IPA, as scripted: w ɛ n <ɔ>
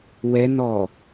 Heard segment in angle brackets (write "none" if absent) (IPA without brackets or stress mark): ɔ